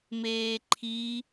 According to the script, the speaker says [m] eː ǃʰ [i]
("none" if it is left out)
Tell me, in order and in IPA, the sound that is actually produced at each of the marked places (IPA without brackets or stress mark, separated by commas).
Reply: m, i